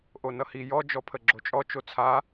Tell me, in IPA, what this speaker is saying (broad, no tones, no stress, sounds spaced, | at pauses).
ʔ o n ʌ h i j ɔ d͡ʒ ɔ pʰ ə ɡ͡ǁ o t͡ʃʼ ɔ t͡ʃ o t͡sʰ a